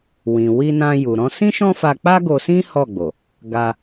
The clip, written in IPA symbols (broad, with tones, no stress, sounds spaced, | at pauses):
w ĩ˨ w i˧ n ã˧ j u˨ ɾ ɔ̃˧ s ĩ˦ ʃ ɔ̃˦ f a˧ k͡p a˦ ɡ o˧ s ĩ˦ h ɔ˦˨ ɡ͡b o˨ | ɡ a˧